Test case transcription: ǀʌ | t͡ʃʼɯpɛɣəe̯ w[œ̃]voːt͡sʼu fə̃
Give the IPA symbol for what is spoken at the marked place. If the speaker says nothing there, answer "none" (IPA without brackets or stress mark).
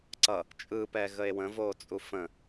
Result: ə̃